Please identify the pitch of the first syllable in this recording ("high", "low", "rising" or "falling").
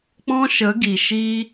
high